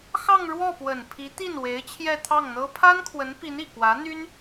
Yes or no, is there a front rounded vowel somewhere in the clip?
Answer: yes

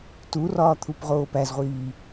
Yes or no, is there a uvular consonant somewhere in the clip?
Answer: yes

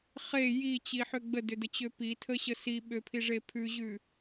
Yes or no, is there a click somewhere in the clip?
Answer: no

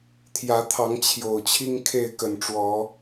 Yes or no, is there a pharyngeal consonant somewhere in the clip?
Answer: no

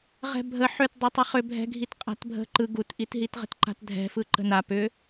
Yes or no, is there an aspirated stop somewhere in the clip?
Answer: no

